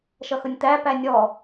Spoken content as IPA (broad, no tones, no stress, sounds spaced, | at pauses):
ʃ ʌ x ʊ nʲ t̪ æ p æ nʲ ɔ